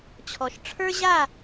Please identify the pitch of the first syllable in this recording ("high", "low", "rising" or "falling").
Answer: low